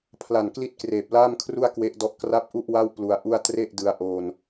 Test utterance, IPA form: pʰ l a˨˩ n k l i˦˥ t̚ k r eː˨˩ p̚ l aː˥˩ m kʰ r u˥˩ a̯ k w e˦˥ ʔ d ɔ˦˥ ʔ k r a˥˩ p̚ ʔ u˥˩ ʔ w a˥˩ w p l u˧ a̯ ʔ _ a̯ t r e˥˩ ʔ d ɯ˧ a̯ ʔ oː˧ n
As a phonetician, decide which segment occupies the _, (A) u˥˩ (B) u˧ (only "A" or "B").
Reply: A